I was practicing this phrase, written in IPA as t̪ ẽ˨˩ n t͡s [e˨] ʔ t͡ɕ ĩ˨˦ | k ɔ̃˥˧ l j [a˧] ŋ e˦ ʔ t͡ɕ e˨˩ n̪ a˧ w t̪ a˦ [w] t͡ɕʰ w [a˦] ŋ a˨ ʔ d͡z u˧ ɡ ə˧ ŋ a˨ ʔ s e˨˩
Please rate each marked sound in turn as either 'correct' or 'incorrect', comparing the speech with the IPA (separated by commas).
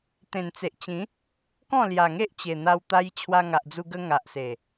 correct, incorrect, incorrect, incorrect